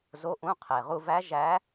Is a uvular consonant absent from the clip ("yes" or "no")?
no